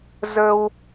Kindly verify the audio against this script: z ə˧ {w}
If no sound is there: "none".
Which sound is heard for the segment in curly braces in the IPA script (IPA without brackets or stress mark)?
w